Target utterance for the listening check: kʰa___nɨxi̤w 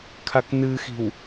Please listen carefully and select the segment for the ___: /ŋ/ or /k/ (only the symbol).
k